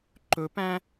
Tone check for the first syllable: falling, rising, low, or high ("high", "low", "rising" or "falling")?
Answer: rising